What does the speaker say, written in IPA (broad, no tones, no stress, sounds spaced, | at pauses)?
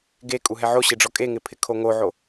ɡ e kʼ u ɦ ɛ ʕ o ɕ e ɖ͡ʐ ɔ kʼ e ŋ ɪ pʰ ɪ kʰ o ŋ o ʕ o